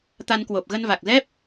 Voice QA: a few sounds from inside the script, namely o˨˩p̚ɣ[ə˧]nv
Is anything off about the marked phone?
no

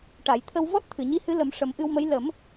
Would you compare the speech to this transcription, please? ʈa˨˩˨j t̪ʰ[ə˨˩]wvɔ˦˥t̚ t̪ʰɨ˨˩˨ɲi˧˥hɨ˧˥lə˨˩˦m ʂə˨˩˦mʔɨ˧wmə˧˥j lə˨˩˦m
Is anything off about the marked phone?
yes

